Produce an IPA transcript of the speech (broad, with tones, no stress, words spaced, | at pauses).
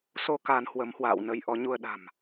so˧ ka˧n hwə˨˦mhwa̰ː˧˨w nə˧jʔɔ˨˦ ɲu˧ə̯ ɗa̤˨˩m